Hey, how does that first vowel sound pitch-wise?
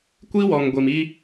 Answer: high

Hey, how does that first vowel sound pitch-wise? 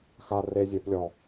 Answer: low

